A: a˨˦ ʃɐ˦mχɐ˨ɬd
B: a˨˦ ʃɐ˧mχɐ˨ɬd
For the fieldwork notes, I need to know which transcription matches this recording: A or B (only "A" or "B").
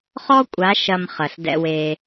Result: B